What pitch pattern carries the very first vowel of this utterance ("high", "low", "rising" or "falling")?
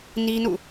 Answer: high